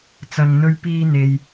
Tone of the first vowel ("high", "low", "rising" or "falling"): low